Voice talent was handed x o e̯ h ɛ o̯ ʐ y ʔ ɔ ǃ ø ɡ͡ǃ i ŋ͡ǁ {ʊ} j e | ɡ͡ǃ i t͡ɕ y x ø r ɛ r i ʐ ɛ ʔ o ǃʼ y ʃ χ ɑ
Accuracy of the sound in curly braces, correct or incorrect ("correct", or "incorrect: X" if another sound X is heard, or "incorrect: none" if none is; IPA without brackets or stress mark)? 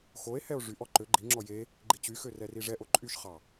incorrect: ɔ